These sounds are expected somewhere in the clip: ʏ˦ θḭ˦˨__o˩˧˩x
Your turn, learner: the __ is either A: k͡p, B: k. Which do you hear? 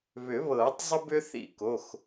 B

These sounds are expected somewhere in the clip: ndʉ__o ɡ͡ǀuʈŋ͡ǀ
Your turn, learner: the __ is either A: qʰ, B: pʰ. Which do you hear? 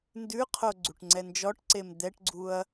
A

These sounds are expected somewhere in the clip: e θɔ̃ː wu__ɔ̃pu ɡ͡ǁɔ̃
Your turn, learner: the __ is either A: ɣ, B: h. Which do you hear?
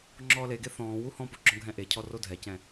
B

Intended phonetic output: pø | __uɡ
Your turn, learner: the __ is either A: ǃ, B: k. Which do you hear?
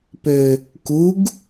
B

